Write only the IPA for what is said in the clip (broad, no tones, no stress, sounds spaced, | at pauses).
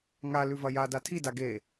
ŋ a l ʉ v ɐ j a d a tʰ i d a ɡ e